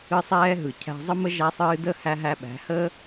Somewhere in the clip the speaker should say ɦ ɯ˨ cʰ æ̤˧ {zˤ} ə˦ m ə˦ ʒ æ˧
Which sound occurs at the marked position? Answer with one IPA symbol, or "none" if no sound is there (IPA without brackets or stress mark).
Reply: zˤ